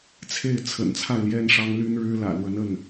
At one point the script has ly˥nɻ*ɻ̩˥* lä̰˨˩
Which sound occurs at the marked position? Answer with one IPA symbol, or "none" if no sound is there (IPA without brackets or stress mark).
ɻ̩˥